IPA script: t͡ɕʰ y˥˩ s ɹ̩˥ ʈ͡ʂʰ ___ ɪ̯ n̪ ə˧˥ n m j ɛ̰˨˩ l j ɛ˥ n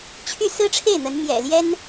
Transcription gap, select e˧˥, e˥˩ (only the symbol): e˥˩